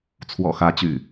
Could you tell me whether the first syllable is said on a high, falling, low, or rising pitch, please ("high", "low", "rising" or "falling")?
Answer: low